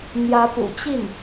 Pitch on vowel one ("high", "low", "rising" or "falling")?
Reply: rising